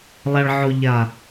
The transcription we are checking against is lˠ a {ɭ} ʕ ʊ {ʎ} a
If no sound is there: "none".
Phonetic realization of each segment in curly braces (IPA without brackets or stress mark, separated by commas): ɭ, ʎ